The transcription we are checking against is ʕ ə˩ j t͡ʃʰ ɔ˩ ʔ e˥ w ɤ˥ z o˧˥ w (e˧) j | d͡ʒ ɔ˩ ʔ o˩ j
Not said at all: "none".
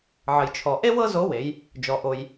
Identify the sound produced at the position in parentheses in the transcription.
e˩˧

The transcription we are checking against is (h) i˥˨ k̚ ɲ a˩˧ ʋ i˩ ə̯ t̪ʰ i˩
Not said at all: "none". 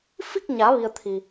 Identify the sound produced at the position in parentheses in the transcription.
f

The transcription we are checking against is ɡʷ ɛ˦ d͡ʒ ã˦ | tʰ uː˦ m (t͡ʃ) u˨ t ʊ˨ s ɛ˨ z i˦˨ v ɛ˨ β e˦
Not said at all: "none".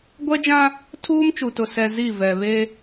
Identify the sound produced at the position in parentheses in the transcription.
t͡ʃ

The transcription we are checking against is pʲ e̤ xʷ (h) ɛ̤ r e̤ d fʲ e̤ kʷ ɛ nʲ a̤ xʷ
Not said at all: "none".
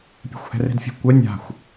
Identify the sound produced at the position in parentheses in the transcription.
h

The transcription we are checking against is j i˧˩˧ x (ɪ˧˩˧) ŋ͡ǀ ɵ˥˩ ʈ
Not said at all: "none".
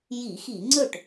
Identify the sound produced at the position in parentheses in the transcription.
i˧˩˧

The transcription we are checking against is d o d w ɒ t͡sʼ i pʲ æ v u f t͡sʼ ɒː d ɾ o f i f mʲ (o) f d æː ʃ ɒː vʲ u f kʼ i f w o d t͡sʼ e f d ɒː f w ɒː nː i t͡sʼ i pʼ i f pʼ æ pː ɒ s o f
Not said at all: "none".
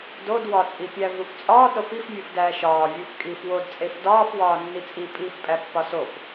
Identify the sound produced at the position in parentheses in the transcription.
u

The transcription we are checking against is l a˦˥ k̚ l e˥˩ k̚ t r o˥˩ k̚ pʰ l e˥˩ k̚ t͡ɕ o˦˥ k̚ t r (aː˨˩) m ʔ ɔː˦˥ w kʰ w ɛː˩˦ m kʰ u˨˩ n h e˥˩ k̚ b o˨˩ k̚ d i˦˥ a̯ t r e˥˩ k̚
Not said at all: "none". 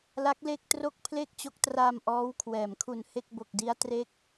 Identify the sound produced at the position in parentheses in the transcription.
aː˧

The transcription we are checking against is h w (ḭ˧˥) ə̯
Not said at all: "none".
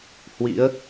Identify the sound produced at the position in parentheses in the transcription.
ḭ˧˥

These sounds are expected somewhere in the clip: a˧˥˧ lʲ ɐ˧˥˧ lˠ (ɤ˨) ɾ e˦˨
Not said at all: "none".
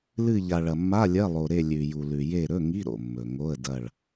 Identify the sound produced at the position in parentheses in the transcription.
o˨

